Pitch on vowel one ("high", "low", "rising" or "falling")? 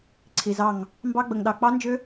low